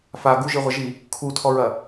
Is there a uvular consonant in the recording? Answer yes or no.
yes